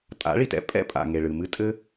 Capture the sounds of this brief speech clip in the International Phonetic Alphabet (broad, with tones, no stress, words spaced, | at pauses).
tʼa̰˨˦ɭi˩tɛ̰˨˦ pʼɛ̰˦pʼa̰˩ ŋe˩ɭɨ˩ mɨ˦tʼɘ˦